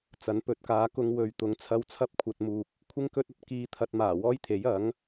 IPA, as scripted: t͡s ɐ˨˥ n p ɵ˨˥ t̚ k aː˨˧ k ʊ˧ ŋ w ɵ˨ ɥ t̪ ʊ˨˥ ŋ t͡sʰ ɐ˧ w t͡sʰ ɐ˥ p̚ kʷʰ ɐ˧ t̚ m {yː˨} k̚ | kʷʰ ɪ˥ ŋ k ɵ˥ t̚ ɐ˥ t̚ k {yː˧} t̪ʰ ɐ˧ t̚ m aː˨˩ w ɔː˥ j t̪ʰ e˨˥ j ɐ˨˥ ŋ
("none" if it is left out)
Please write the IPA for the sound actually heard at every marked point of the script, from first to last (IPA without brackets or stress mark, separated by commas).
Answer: uː˨, iː˧